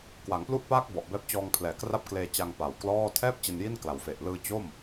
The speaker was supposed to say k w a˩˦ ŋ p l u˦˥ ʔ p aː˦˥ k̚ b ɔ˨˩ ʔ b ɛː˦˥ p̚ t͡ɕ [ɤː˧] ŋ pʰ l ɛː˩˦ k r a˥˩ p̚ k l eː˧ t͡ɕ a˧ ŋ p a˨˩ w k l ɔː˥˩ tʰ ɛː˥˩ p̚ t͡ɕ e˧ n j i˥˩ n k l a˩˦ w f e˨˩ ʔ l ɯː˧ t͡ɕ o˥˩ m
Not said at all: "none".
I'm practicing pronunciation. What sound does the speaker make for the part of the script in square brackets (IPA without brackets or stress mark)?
ɔː˧